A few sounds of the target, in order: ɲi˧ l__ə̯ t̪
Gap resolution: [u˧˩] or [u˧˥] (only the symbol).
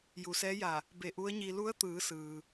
u˧˥